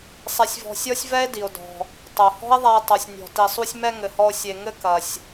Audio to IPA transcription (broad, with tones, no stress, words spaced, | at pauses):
sˤe˧sʲvɔ̤˧ sʲɔ˥sʲvɛ˥e̯ di˩o̯dɔ̤˩ | tˤo˩hɔ̤˥e̯ðˤa˧e̯ tˤo˩sʲnʲɔ̤˩ ti˩ sˤu˧sʲ mɛ˧ ŋɘ˩hɔ˧o̯ sʲe˩ŋɘ˧ kɐ˩sʲ